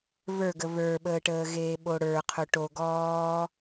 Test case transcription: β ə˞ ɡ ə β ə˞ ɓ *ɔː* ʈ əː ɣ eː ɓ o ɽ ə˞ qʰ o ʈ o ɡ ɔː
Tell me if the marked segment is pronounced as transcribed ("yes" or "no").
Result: no